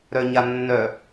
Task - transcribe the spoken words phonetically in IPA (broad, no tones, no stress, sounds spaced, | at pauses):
ɾ œ ɲ a nː œ